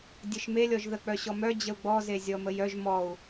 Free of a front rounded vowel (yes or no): no